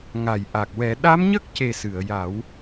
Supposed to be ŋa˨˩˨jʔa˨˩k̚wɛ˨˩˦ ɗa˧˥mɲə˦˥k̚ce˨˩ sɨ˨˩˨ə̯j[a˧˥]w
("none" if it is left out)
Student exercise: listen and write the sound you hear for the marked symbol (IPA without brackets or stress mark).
a˨˩˦